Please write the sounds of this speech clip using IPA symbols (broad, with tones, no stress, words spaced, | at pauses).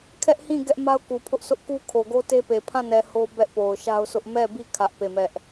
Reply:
kʰɛ˦ʔhĩ˦˨ ɡɛ˦ʔma˦ʊ̯ku˨pʰʊ˦ʔ sʊ˦ʔku˦kʰo˨ ɡo˦te˦pe˨ pʰã˦˨nɛ˨ ho˦ bɛ˦ʔpo˨ʊ̯ʃa˦ʊ̯sʰʊ˦ʔ mɛ˦˨bi˦˨ kʰä˦ʔpe˦˨mɛ˦ʔ